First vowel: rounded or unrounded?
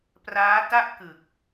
unrounded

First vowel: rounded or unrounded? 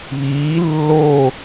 unrounded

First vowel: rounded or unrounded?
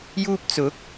rounded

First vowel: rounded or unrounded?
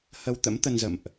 unrounded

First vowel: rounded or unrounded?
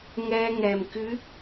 unrounded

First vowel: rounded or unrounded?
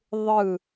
unrounded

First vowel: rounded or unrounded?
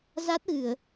unrounded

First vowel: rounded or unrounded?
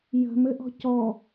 unrounded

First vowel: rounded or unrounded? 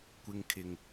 unrounded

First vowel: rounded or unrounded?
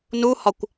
rounded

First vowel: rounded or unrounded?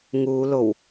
rounded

